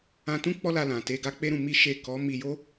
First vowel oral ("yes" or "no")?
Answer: no